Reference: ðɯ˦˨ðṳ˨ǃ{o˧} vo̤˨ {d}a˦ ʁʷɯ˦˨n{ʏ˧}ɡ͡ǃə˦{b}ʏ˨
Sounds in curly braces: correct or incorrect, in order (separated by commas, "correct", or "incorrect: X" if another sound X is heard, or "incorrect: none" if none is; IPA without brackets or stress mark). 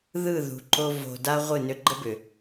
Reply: correct, correct, correct, correct